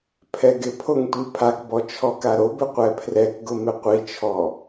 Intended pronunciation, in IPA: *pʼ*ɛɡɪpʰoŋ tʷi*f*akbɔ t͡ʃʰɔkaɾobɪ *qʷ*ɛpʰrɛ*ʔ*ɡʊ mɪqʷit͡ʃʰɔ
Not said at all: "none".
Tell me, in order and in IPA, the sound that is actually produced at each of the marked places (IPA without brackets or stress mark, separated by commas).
pʰ, pʰ, qʷ, k